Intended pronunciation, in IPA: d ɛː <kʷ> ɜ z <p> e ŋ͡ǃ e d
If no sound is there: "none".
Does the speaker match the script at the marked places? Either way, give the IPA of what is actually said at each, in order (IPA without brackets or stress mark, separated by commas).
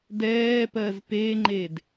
p, p